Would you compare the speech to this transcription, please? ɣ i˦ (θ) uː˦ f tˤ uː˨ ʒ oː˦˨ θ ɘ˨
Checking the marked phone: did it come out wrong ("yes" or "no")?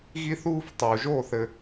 no